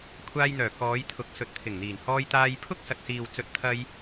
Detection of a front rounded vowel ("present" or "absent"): present